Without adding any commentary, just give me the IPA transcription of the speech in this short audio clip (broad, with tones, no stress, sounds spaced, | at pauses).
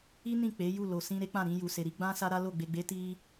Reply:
i˦ n ĩ˦˨ k͡p e˨˦ j u˦˨ l o˨ s ĩ˧ ɾ e˦ k͡p ã˦˨ ɾ ĩ˧ j u˨ s e˨ ɾ i˨˦ ɡ͡b ã˦ s a˦ ɾ a˦ l o˦˨ ɡ͡b e˨ ɡ͡b e˨˦ t i˦